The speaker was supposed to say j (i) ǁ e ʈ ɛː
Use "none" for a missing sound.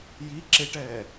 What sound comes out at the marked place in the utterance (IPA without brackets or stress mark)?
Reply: i